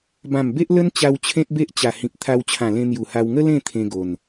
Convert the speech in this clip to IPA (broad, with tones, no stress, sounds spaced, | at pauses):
b ã˨˩ m b e˦ ʔ l ə˦ n t͡ɕ a˧ w t͡ɕʰ ẽ˦ t̚ b e˦ ʔ t͡ɕ a˨˩ h ĩ˨ p̚ t̪ʰ a˧ w t͡ɕʰ ã˨˩ l ẽ˧ n̪ j u˨˩ h a˧ w ŋ ə˦ l ẽ˥˧ t̪ʰ ẽ˧ ɡ o˨˩ n